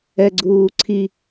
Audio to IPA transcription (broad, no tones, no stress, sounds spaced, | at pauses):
ɛ ɡ͡ǀ uː ǀʰ i